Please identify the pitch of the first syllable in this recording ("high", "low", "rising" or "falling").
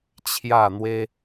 falling